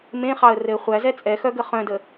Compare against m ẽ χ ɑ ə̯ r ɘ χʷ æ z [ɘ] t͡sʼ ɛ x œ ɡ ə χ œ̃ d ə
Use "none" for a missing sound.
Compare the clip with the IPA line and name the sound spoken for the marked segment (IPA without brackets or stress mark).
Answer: ɛ